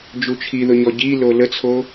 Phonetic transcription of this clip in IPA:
d͡ʒ u t͡ʃʰ i ð ʊ ɲ ɔ ɟ i l o l ə t͡sʰ o

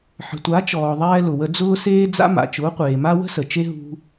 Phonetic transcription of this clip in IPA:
ħ ə̤˨ tʷ a˨˦ t͡ʃ ɔː˨ ðˤ ɛː˧ l ʊ˨ w ə˧ d͡z ʊː˦ s eː˦ d͡z a̰˦ m a̰˨ t͡ʃ ʊː˨˦ qʷ eː˨ m a˦ w ə̤˦ s ə˨ t͡ʃ e˦ ɦ ṳ˦

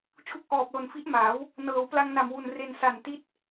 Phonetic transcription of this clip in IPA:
t͡ɕʰ u˦˥ k̚ ʔ ɔː˨˩ p̚ l o˨˩ n f i˦˥ ʔ m aː˩˦ w | n ɤː˩˦ w p l a˧ ŋ n a˨˩ m w u˨˩ n r e˧ n s a˨˩ n t i˦˥ t̚

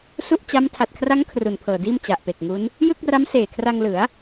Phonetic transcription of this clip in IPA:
s u˥˩ ʔ t͡ɕ a˦˥ m tʰ a˨˩ t̚ kʰ r a˦˥ ŋ kʰ r u˨˩ n pʰ ɤː˨˩ d iː˥˩ m t͡ɕ a˨˩ ʔ p e˨˩ k̚ ŋ u˦˥ n | j ɯ˥˩ k̚ r a˦˥ m s eː˨˩ kʰ r a˧ ŋ l ɯ˩˦ a̯

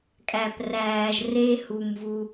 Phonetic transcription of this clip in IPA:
kʼ æ˧ p r æː˧ ʒ r e˦ h u˧ m v u˧

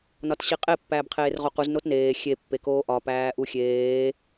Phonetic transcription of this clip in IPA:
n ɒ t ɕ i qʼ e pː æː b qʰ eː r ʁ o q u z n o t n eː xʲ e pː e k oː ʔ ɒ p æː ʔ u xʲ eː

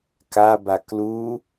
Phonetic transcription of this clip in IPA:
k a b a k l u

